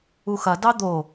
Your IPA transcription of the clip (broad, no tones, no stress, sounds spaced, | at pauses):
u x ɐ d ɑ d̪ o